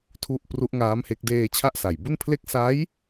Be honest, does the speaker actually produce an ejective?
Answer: no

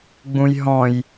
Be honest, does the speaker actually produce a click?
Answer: no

